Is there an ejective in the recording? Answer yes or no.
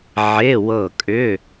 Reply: yes